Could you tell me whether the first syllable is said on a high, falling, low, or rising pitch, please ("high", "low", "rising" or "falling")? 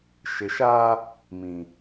low